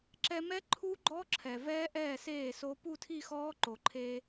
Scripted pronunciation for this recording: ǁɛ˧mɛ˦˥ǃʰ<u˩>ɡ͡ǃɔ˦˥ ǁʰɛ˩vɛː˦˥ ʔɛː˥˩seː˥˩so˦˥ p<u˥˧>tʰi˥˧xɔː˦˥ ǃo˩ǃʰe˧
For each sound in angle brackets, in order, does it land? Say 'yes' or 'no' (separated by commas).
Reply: no, yes